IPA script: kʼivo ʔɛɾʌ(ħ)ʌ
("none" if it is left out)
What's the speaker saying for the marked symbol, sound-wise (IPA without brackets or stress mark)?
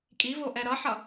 ħ